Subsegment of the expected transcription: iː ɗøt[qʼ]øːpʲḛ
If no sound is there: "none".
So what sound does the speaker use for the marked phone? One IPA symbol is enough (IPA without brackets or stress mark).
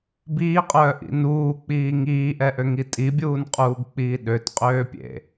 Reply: qʼ